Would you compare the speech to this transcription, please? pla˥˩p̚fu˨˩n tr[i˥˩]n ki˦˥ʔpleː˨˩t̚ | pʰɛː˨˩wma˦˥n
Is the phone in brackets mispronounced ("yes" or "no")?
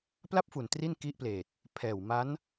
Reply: no